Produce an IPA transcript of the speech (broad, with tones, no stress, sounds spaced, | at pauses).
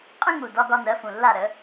qʼ ə̃˦ ŋ u˨˩ d ɒ˦ ɡ ɒ˦ n ɜ˩˥ f ũ˨˩ lː a˥˩ ɾ ə˩˥